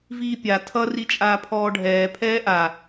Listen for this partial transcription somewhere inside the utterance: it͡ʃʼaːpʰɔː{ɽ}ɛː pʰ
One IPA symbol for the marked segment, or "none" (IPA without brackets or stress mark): ɖʱ